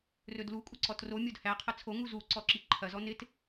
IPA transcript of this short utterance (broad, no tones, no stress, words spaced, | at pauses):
rɵdlu kʷʼəǀɔtro mʲodhæ qʰɐt͡sʰo ŋuzu ǀɔǁiǃʰɐ zɔnɪt